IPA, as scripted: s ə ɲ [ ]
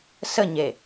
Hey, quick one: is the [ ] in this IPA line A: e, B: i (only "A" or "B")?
A